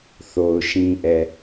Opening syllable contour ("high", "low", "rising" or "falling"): low